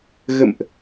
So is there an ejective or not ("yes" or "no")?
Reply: no